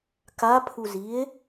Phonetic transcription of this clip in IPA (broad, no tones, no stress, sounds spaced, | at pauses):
k a pʰ u z i e̯